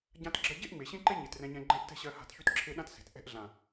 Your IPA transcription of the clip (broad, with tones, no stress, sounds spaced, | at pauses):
ɟ ã˦ t ɡ͡ǁ ɜ˦ ɟ e˦ ʔ ŋ͡m e˨ ɕ ẽ˦ ǃ e˦ ɲ e˨ t r ɛ̃˧ ɲ ɛ̃˧ ɡ͡ǃ ɛ̃˦ ʔ t ɛ̤˦ ɕ ɜ˧ h a̤˧ t ç y˦ t ǁʰ e˦ ɗ ã˦ t s e̤˨ t ʔ ɛ̤˧ ʔ ɮ ã˨